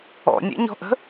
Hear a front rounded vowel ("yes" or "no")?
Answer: no